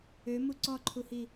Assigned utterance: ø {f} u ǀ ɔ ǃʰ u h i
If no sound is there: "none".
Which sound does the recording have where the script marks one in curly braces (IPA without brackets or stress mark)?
m